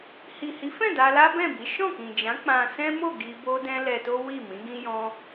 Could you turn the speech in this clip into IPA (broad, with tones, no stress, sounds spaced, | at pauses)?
h i˨ h i˨˦ f ɛ̃˦˨ d a˧ l a˦ b ɛ̃˦˨ b i˨˦ ʃ ɔ̃˦˨ k ĩ˨ d͡ʒ ã˨˦ k͡p ã˧ s ɛ̃˦ m o˦˨ ɡ i˧ b o˦ d ɛ̃˦ l ɛ˧ t o˦ w i˦˨ m ĩ˨˦ ɡ ĩ˦ j ɔ̃˦